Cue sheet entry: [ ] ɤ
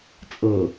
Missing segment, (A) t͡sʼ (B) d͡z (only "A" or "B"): A